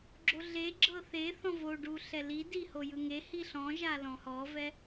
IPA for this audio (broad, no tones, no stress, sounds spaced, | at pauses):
ɡ͡ǁ o ɮ e ɡ͡ǁ ɤ θ e θ ɔ̃ v o ɖ u ɬ ɛ l i d i h o j ɯ ŋ e h i ɬ ɔ̃ ʒ a l ɔ̃ h ɔ v ɛ